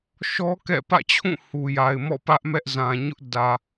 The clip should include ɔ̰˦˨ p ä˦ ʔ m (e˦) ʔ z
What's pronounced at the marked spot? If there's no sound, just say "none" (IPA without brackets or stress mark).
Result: ɛ˦